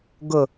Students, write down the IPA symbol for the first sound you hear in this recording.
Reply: ɡ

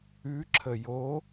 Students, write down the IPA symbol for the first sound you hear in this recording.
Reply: ʉ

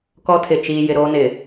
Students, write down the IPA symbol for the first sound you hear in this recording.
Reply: k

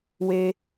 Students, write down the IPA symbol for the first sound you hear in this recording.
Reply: w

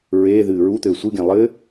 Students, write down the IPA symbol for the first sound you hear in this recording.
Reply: ɹ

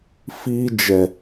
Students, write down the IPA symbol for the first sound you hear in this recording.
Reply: f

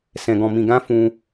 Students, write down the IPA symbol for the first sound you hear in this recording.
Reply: s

